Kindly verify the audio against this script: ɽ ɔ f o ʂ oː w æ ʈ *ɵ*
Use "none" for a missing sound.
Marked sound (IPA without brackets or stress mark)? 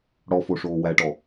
ɔ